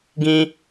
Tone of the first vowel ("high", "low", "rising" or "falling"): high